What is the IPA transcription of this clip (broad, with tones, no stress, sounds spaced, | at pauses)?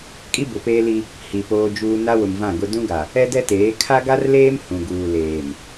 kʼ i˦ b ʊ˨ p eː˦ l i˦ | h i˨ p oː˦ d͡ʒ uː˦ n a˦ w ʊ˨ m v ã˦˨ ɡ ʊ˦ d ũ˦ ɡ a˨ | ɛ˦ d ɛ˦ t eː˨˦ kʰ a˦ ɡ a˦ r l eː˦ m h ũ˨ ɡ uː˨ l eː˨ m